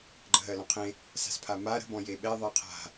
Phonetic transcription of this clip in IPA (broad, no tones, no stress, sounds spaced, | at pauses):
ɡ͡ǃ ə̤ ɦ ɜ l ɔ̃ qʰ ẽ | s a̤ s pʰ a m a ɾ ə̤ b ɔ̃ j e ɓ ɛ ðˤ ɜ qʰ a̤